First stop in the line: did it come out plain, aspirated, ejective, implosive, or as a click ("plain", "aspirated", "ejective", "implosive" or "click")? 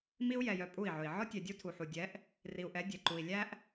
ejective